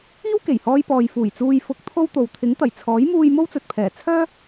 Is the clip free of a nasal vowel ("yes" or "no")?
yes